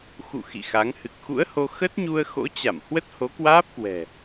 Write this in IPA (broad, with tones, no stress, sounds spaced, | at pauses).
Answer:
x ṵ˧˨ x ḭ˧˨ x a˨˦ ŋ h ɨ˨˩ k̚ x ṵ˧˥ ə̯ h o˧ x ə˦˥ t̚ ɲ u˧ ə̯ x o̰˧˥ t͡ɕ a˧˩ m h w ə˦˥ t̚ h o˨˦ k w aː˦˥ p̚ k w ɛ̤˨˩